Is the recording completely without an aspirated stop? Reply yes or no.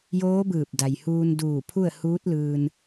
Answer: no